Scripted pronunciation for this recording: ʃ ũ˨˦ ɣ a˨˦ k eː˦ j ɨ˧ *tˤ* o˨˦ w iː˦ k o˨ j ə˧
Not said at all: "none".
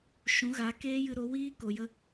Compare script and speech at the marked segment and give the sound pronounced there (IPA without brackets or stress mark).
ɾ